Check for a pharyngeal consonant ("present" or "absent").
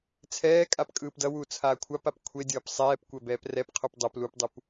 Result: absent